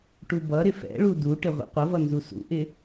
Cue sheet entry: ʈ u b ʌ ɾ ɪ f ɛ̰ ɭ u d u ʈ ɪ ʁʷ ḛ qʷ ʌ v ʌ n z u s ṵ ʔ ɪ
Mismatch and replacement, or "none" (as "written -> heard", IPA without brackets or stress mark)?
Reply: none